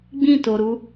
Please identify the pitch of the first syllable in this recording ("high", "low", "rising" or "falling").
falling